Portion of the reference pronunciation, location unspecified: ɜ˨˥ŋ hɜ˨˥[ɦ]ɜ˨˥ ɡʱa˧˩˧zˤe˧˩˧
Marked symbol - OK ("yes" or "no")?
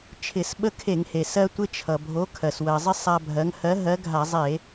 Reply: yes